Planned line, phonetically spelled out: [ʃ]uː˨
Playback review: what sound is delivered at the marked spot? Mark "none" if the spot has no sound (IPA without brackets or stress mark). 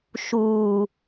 ʃ